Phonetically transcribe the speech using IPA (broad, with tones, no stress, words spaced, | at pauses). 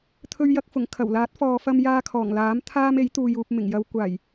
t̪ʰɵ˧ɥjɐ˧k̚fʊ˨˩ŋ kʰɐ˨˩wlaː˨˥t̚fɔː˨ fɐ˧mjaː˧kʰɔː˨˩ŋlaː˨˥m t̪ʰaː˧m e˨˥jt̪uː˨juː˨p̚ mɪ˨˩ŋjɐ˨˧wkʷaː˨˩j